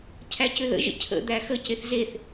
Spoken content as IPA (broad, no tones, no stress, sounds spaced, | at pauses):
cʰ æ c ʏ ð ə̰ ʒ ə̰ cʰ ə̰ d̪ æ x ə c e θ z e θ